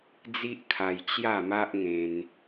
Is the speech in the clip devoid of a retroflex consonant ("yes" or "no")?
yes